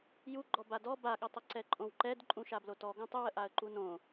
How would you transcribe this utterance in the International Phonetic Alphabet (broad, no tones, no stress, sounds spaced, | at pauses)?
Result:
j u ɡ͡ǃ ɔ b a d ɔ b a ɠ ə tˤ ə ǀ ɛ ǃʼ õ w ǃ ɛ d ǃʼ ũ ʃ a b l o t ɔ ɡ õ tˤ ə w ə ʔ a ə̯ ǃ u n õ